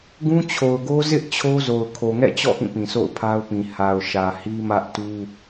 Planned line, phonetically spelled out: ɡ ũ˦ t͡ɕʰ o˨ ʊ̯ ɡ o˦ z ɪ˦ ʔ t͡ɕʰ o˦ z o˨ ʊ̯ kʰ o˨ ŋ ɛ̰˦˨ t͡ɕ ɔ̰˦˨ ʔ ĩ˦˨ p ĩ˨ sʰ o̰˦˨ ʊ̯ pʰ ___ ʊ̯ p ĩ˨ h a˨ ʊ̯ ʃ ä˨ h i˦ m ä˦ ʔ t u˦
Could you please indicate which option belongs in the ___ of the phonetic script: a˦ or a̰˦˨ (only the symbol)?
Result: a˦